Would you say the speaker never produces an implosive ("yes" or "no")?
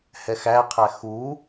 yes